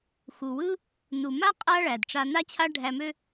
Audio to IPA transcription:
x u˩ w ɯ˥ | n u˩ m a˥ qʼ a˥ ɭ æ˩ d ʈ͡ʂ a˧ n a˥ t͡ɕʰ a˥ ɖʱ æ˧ m ø˥

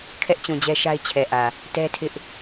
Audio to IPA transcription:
kʰ ɛ˦ ʔ t͡ɕ ũ˨ d͡ʑ ɛ˦ ʃ a˦ ɪ̯ t͡ɕʰ ɛ˨ ʔ ä˨ | t ɛ˦ tʰ ɪ˦ ʔ

